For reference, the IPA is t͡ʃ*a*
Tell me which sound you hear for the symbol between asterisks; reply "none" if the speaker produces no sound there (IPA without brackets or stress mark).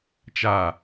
a